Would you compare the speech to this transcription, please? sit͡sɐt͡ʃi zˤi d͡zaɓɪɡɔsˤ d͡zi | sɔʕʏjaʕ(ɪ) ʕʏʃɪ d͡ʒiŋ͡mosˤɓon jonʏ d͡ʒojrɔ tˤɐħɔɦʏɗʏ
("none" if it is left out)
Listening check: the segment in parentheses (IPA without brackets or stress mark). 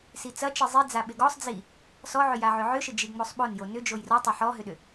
ʏ